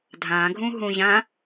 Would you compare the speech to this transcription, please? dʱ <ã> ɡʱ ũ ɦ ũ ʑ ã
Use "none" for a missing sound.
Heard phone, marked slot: ã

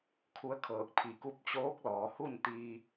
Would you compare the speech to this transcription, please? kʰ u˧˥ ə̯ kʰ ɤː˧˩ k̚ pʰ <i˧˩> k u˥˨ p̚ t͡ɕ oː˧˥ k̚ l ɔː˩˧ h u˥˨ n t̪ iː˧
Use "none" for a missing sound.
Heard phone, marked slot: i˧˩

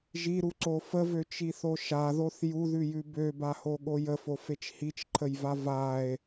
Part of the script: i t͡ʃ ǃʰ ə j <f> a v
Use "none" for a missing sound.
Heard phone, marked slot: v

